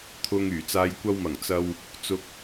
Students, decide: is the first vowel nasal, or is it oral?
oral